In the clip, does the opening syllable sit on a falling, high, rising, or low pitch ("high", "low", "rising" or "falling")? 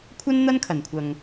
high